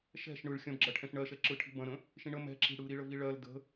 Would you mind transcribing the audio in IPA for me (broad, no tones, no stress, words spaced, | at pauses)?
ʃɛ̤ʃ ɳɯɭ xʲɐ̃bɡ͡ǁɜʈʰɛ̃ʃ ɳɜʃɛǁɯʈʰi̤ bɐ̃ɾə̃ | ʃĩɳə mɛ̤ǁi̤ ɽɯɾiɭə viɭɜl də̤